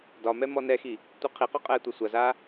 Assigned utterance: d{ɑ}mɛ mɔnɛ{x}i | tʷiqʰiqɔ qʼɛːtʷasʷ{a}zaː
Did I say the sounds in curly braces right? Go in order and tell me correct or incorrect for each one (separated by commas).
incorrect, correct, correct